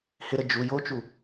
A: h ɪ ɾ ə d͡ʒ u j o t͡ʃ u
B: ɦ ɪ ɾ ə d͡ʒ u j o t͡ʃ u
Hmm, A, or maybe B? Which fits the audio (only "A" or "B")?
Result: A